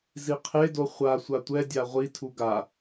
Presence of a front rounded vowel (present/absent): absent